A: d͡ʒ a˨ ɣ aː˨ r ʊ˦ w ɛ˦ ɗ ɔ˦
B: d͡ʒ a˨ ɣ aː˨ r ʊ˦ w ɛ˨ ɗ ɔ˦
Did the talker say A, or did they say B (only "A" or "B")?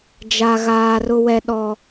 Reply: A